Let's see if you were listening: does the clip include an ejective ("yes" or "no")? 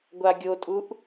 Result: yes